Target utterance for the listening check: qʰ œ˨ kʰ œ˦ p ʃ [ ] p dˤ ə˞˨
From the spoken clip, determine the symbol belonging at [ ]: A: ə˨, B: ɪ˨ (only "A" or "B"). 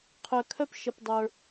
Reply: A